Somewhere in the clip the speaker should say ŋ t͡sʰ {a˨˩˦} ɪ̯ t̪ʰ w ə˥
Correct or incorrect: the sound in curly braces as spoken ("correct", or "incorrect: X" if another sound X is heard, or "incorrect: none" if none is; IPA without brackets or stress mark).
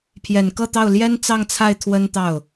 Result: incorrect: a˥˩